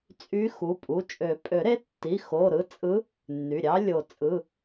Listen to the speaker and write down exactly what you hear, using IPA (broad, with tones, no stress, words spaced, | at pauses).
t͡sʼy˧˥xu˩˧˩pʼu˩˧˩ t͡ʃʼø˨˩˦pʼø˨˩˦ɾe˧˥ tːi˩˧˩ xo˩˧˩ɾɯ˧˥ t͡sʼɯ˧˥ | nːy˩˧˩ɾʲɑ˧˥ lʲo˨˩˦t͡sʼɯ˩˧˩